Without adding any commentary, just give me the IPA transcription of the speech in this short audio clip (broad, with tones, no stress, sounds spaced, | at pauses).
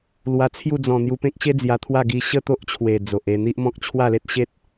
l w a˧ t͡sʰ j u˥˧ d͡z ɔ̃˨˩ n̪ j u˧ p ẽ˦ k̚ ɕ e˦ d͡z j a˧ t̪ʰ w a˥˧ ɡ i˧ ɕ ə˥˧ t̪ o˦ ʔ t͡ɕʰ w e˨˩ d͡z o˨ ʔ e˥˧ n̪ i˦ ʔ m ɔ̃˦ k̚ t͡ɕʰ w a˥˧ l e˦ t̚ ɕ e˦ t̚